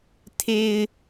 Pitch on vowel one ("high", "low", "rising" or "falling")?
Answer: low